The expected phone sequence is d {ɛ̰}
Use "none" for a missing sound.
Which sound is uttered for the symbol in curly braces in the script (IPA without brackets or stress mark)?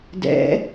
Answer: ɛ̰